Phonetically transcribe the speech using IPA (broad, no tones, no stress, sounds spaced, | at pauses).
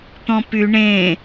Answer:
t̪ ɔ̃ p y ɳ ẽ